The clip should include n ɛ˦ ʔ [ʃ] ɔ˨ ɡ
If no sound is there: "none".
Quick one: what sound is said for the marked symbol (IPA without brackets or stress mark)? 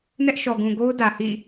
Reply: ʃ